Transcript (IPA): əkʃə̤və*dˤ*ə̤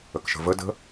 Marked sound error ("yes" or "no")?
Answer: yes